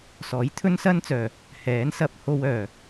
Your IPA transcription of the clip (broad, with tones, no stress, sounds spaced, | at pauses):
s ɔː˨˥ j t̪ʰ ɵ˥ n s ɐ˥ n t͡s œː˨˩ | h ɛː˨˥ n s ɐ˧ p̚ h o˧ w œː˨˩